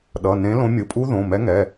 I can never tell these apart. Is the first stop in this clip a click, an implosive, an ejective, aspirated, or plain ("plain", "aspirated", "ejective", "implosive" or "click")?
implosive